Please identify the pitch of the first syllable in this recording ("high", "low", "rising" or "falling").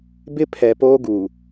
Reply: high